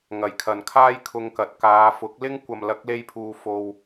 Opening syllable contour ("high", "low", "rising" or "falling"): low